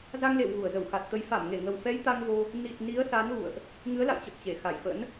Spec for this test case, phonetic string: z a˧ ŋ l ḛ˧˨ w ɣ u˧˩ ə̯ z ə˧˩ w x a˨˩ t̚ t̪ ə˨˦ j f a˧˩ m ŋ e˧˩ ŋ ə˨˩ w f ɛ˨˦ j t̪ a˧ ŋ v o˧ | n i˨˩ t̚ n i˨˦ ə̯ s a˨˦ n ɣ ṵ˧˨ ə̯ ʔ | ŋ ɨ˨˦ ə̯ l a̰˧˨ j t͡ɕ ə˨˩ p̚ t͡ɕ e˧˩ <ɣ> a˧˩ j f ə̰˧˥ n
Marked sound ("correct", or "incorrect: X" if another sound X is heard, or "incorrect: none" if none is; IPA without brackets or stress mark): incorrect: x